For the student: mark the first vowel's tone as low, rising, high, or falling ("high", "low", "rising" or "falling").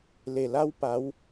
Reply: low